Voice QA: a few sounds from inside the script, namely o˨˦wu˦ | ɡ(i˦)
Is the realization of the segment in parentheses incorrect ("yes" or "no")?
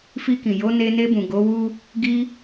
yes